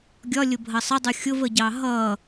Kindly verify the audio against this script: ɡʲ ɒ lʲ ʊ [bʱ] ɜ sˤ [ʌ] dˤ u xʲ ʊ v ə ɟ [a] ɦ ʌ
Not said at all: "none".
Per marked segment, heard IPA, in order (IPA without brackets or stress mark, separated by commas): bʱ, ə, ɑ